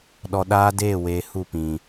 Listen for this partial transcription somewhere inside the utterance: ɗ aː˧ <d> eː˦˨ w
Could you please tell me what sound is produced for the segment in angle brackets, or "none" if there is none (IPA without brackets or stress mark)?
d